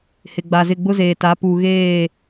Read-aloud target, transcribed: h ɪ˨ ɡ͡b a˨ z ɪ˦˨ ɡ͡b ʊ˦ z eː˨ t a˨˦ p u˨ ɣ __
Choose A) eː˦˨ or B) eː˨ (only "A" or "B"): A